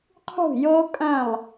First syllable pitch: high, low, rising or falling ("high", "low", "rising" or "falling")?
falling